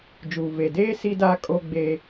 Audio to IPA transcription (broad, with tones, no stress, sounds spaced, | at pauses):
d͡ʒ uː˨ v e˨ d eː˦ s i˦ d aː˦ kʼ o˦ ɡ͡b eː˦